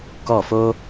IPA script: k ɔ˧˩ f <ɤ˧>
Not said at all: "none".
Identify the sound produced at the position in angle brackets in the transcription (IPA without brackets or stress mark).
o˧